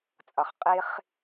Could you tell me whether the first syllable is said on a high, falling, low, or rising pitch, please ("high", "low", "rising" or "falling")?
low